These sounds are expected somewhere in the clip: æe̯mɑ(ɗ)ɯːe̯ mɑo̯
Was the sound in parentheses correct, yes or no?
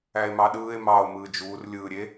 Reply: yes